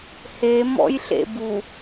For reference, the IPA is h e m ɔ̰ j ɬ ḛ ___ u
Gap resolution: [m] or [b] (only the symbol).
b